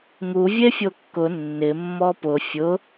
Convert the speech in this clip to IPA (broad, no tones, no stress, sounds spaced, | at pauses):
ŋ u vʲ e fʲ o kː ʊ nː ɪ mː ɔ p ʊ fʲ ʊ